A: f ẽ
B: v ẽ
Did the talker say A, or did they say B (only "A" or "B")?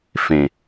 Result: A